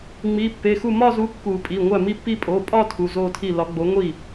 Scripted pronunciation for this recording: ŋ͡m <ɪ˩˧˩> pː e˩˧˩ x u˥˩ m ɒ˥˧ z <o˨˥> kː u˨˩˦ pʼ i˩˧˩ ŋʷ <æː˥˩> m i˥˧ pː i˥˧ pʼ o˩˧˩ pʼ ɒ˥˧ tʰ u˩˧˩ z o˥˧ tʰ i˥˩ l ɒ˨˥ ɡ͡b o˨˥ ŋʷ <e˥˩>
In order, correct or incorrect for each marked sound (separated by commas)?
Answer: incorrect, incorrect, incorrect, incorrect